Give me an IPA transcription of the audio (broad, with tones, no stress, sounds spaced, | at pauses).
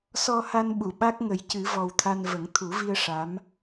s ɔ˧ h a˧ n ɓ u˨˩˨ ɓ a˦˥ k̚ ŋ ə˨˩˦ j c ɨ˨˩˦ v ɔ˨˩ w t̪ʰ a˧ n v ə˨˩˦ ŋ t̪ʰ u˨˩˦ v i˧ ə̯ ʂ a˧˥ m